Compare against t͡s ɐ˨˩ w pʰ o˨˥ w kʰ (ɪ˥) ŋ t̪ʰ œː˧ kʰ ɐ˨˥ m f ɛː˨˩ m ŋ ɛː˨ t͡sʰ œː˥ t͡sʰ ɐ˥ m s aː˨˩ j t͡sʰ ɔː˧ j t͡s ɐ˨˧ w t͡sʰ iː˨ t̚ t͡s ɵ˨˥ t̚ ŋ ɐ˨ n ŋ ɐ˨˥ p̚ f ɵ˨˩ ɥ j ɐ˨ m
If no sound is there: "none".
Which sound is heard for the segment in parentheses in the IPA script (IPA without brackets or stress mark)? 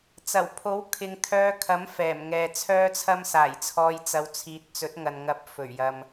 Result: ɪ˨